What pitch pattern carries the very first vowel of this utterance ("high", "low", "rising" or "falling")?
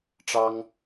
high